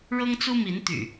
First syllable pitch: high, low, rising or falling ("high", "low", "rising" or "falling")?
high